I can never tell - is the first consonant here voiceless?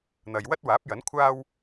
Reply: no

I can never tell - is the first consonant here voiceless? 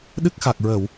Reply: no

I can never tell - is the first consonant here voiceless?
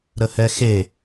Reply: no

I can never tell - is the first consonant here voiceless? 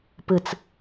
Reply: yes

